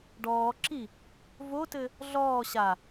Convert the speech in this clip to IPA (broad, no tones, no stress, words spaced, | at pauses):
ɖɔːǁi | votɘ | ɮɔː ɕa